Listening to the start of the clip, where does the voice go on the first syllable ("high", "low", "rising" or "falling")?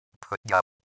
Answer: rising